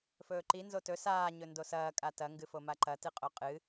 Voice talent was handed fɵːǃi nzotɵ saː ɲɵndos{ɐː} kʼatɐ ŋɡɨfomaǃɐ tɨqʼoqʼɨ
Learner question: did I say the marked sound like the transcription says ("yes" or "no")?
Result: yes